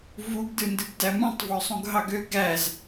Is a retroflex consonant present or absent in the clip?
absent